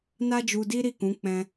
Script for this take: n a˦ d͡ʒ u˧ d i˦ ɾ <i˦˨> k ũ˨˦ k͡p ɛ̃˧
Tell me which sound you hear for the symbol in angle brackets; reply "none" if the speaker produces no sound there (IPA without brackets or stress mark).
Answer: i˦˨